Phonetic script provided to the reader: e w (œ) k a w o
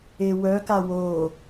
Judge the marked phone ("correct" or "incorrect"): correct